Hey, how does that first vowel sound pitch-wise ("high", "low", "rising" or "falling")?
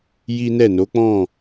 high